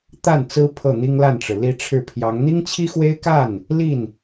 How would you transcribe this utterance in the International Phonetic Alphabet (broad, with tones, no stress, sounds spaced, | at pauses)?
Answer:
t̪ a˥˩ n t͡s ɹ̩˥ pʰ ɤ˥˩ n̪ i˥ ŋ l a˥˩ n ʈ͡ʂ ɻ̩˩ l i˧˥ ʈ͡ʂʰ ɻ̩˥˩ pʰ j ɑ˧˥ ŋ n̪ i˥ ŋ t͡ɕʰ i˥ x w e˥ ɪ̯ k a˥˩ n | l i˥˩ n